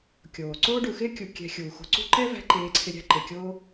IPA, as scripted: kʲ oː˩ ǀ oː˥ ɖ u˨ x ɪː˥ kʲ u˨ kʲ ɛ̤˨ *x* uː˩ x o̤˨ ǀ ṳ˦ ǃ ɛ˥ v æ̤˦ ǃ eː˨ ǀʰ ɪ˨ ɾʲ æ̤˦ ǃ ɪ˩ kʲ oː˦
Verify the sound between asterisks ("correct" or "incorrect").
incorrect